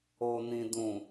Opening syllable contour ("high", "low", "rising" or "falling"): low